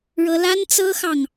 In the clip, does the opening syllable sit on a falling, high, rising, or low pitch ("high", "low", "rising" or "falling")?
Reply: high